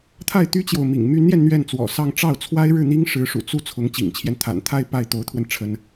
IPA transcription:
t̪ʰa˥˩ɪ̯t̪y˥t͡ɕjo˨ʊ̯mḭ˨˩ŋ my˧˥njɛ˧n n̪ɥɛ˥˩nt͡swɔ̰˨˩sɑ˥˧ŋ ʈ͡ʂɑ˥˩ʊ̯t͡sʰwa˥ɪ̯ɻɻ̩˥˩n̪i˥ŋ ʂɻ̩˧˥ʂṵ˨˩t͡su˥˩ t͡sʰʊ˧˥ŋt͡ɕḭ˨˩ŋt͡ɕʰjɛ˦n t̪ʰa̰˨˩nt̪ʰa˥˧ɪ̯ pa˥˩ɪ̯t̪o˧˥ʊ̯t̪ʰwə˧n ʈ͡ʂʰə˥n

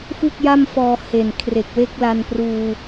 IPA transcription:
fu˥˩k̚ja˥˩mfɔː˧ he˨˩nkʰre˨˩k̚we˥˩k̚ la˧npruː˧

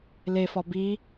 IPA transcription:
lefɒ bi

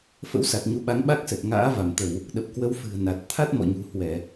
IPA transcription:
fə̰˧˥wsa˨˩t̚ ɲu˨˦ɓa˨˦ŋ ɓa˦˥k̚sə˨˩t̚ ŋa̰ː˧˥va˧˩mt̪ə˧˩˨w | ɗə˨˩p̚kwə˨˦w fɨ̤˨˩ə̯na˨˩t̚ t̪ʰa˦˥t̚mɔ̰˧˨ɲṳ˨˩ hwɛ˧˩˨

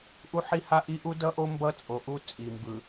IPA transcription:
ʔu˦ħi˦ha˦ʔi˦ ʔu˦dʌ˦ʔo˦ mbʌ˦t͡sʼo˨ʔu˦ t͡sʼi˨mbɯ˨

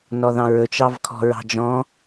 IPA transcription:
nɔðɑ̃ɹɵt͡ʃ ɑvkʰɔ̤ɹɑ̤d͡ʒɔ̃

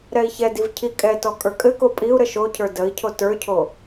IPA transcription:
ɾɛi̯çɛdiv cʰikʼɛtɔ kʼə˞kʼɘko pʼiu̯ ɾəʃocʰə˞ dəi̯cʰo tə˞cʰo

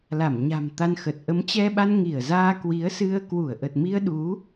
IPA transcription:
la˧˩mɲa̤˨˩m t̪a˧nxə˨˩t̚ ʔə˨˦mt͡ɕɛ˧ɓa˧n ŋi˧˩ə̯zaː˧ kwi˨˦ə̯sɨ˧ə̯ kwu˧˩ə̯ʔə˨˩t̚mi˧ə̯ɗu˨˦

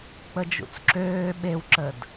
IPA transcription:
k͡pəd͡ʒṵt͡sǁøː ɓewǁəd

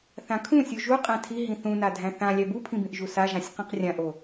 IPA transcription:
θãkʰũsʲu ʒu qʼæ̃tʰi ɦĩθũna dʱæ̃θã lʲæbupʰĩbĩʔ ʒusaʒãsʲ qĩqrʲãʔo

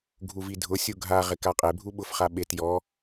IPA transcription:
ɡʱuvidʱʊsʲu ɡʱaʁɪ kaqʼebʱu ɓʊfχa ɓet jɔ

